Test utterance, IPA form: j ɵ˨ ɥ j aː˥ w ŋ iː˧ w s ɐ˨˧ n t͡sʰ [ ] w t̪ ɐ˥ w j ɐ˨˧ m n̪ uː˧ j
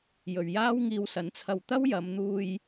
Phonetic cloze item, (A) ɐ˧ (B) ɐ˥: A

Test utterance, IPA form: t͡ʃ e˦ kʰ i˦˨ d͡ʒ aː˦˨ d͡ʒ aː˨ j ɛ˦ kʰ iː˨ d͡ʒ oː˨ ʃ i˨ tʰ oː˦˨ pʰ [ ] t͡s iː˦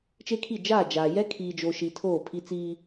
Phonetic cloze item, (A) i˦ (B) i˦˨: A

